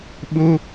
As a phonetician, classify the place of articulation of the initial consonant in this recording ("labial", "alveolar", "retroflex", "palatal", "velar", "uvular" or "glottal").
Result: labial